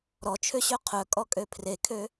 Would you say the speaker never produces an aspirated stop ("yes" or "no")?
no